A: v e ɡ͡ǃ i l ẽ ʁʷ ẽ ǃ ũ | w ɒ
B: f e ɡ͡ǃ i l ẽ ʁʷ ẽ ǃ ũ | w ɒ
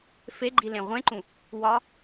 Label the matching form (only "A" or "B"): B